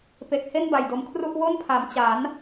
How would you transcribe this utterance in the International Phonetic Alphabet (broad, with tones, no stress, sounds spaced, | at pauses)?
p e˨˩ k̚ h e˥˩ n b a˨˩ j d o˧ m kʰ r u˥˩ ʔ w o˥˩ n pʰ a˩˦ m t͡ɕ a˩˦ n